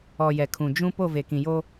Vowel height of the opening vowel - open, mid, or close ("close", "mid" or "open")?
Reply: mid